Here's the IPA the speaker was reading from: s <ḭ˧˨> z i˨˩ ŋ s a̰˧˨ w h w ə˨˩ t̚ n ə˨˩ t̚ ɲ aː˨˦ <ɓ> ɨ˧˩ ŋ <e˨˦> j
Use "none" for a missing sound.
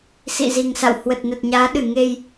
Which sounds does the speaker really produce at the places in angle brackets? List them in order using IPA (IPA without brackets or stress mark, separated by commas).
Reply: ḭ˧˨, ɗ, e˧